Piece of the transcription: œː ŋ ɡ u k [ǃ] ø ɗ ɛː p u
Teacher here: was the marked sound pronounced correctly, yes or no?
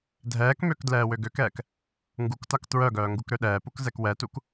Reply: no